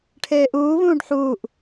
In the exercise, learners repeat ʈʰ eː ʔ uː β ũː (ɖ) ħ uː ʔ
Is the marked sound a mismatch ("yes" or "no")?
no